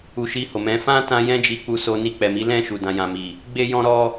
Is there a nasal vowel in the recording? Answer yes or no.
yes